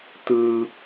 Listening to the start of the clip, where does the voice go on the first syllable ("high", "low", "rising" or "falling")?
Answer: low